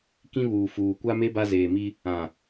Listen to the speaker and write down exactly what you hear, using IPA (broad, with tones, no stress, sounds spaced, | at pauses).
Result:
k ĩ˦ β uː˨ f uː˨ kʷ a˦ m e˦ b a˦ z eː˨ m i˦ | ã˨